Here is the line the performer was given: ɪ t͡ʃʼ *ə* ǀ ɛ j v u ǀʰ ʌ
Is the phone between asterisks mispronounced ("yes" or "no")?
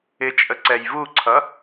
no